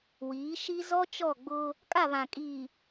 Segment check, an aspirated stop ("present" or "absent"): absent